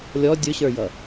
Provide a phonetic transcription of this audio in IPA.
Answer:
lʲɔ dʲʊɕə˞jʌ

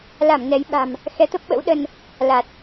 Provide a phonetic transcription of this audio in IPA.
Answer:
la˧˩m nɛ˨˦jɓa̤˨˩m | xɛ˨˦t̪ə˦˥p̚ɓə̰˧˥w ɗə˧n | la˨˩t̚

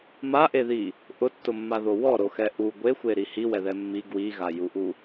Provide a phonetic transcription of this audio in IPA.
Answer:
maʔeði | ʔʊtːʊmːaðo wɔɾoxɛ ʔu ɡʷexʷeɾi hiwɛðɛ mːi ɡwiɣajuʔu

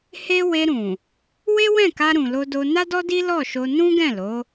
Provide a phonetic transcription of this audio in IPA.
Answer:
he˦ we˧ɾũ˨ | we˦wɛ̃˦˨ka˧ ɾũ˨lo˧do˧ na˦dɔ˦di˦ lɔ˦˨ʃo˧ nũ˦ɡɛ̃˦˨lo˨˦

